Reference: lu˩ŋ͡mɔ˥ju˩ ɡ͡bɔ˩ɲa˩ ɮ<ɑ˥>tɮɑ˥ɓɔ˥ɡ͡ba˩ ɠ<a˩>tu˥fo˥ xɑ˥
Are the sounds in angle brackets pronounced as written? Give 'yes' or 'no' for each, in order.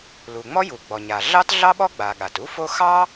yes, yes

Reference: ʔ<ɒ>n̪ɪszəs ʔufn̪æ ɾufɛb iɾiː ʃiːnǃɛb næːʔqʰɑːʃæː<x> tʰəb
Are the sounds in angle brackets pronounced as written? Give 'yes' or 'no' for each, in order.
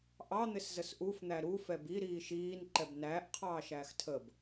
no, yes

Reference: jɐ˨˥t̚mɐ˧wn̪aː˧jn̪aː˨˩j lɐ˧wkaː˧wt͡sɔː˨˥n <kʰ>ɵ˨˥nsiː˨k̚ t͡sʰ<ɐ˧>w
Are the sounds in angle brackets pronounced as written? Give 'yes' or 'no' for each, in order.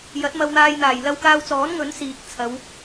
no, no

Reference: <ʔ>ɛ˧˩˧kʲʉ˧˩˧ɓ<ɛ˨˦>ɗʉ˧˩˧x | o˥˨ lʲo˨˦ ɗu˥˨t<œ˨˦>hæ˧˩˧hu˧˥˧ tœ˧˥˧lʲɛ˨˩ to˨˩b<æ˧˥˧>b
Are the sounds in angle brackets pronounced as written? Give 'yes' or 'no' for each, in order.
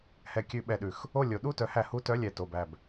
no, no, yes, no

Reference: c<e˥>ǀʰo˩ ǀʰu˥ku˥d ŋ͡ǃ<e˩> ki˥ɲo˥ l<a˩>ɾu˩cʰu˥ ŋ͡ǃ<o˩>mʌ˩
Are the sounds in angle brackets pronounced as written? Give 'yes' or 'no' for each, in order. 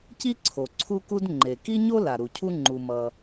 no, yes, yes, no

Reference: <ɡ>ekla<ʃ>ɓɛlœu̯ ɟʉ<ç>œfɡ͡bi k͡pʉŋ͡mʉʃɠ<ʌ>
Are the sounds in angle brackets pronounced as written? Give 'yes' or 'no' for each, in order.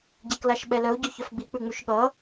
no, yes, yes, yes

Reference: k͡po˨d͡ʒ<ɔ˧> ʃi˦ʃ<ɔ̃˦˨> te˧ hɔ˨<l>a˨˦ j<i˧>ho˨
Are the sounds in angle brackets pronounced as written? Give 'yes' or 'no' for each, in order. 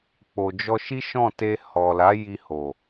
yes, yes, yes, yes

